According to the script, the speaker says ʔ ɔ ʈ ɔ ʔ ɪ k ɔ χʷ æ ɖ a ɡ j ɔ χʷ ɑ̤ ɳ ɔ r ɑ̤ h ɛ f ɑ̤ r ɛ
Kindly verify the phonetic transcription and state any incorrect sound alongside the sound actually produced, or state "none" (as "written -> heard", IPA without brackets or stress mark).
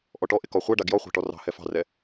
ɳ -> ʈ